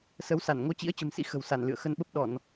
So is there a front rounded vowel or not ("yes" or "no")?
no